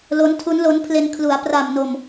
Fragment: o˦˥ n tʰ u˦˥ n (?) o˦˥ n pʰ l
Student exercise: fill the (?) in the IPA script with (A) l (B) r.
A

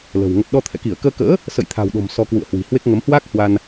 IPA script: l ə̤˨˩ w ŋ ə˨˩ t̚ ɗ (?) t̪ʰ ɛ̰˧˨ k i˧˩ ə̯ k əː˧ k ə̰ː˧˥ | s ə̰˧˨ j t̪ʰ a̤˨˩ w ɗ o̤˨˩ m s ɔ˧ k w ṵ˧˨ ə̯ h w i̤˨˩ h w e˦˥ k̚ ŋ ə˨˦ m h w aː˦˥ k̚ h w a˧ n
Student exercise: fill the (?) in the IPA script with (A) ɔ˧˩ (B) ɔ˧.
B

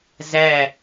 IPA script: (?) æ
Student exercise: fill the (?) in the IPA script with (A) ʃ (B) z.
B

